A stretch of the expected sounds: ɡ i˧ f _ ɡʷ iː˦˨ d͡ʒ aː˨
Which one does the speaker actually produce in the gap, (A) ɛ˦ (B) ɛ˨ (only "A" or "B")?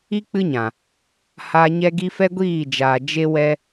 A